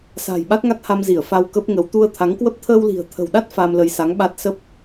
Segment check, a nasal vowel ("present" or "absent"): absent